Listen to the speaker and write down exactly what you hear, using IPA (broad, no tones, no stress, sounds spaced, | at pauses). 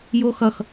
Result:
j o x ʌ x